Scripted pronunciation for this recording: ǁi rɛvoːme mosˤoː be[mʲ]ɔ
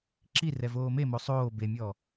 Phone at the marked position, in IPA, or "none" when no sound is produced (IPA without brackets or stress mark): mʲ